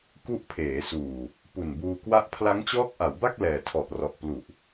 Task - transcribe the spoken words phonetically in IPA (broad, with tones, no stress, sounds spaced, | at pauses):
k u˦˥ ʔ pʰ eː˩˦ s uː˨˩ | p u˨˩ n b uː˧ k w a˥˩ ʔ pʰ l a˦˥ ŋ t͡ɕ ɔː˦˥ k̚ ʔ a˩˦ w b a˥˩ k̚ l ɛː˨˩ tʰ ɔ˨˩ ʔ r ɔ˨˩ ʔ p l u˨˩ ʔ